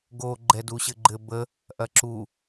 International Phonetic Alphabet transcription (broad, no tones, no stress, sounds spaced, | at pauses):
ɡ o ɡ͡ǃ ɛ d u ɕ ɘ ɡ͡ǃ ɘ b ə | ʔ ɐ ǁ u